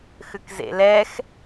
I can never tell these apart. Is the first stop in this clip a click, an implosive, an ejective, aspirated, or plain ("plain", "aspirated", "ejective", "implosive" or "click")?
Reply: plain